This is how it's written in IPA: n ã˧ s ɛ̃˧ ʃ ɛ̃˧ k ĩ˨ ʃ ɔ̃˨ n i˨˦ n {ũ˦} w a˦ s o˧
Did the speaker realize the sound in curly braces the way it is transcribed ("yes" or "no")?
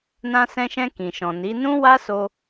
yes